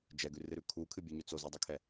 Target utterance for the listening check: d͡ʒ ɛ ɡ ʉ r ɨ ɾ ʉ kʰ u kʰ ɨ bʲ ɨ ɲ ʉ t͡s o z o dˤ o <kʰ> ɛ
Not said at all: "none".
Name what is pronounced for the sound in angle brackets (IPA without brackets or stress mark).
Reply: kʰ